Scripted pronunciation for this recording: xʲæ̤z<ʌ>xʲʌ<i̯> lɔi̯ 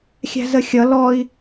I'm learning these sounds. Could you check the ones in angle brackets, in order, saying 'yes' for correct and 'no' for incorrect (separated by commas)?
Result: no, no